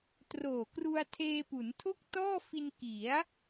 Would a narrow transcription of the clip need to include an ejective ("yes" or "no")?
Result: no